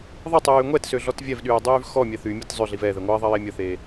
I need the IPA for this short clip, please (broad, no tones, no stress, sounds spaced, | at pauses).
ðˤ ə tˤ yː ŋʷ ɛ t s ø ɮ ɔ t vʲ ɛ v ɗ yː dˤ yː v x ɔ mʲ ɛ θ y mʲ e t zˤ ø ɮ i v ɛ ð ɛ ŋʷ ɐ ðˤ ɐ j e mʲ ə θ e